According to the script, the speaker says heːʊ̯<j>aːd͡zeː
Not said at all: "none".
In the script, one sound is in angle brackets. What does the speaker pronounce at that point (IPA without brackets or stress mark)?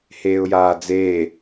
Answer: j